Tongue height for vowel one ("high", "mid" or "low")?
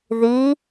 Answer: high